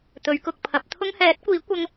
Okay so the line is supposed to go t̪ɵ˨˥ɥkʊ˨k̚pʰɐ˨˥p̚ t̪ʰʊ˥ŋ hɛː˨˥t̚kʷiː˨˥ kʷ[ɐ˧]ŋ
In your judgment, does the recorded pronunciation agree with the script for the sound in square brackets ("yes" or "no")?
yes